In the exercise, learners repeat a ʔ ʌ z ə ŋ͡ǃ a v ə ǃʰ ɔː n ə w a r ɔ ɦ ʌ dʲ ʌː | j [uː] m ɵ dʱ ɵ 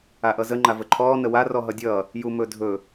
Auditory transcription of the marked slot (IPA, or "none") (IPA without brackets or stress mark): u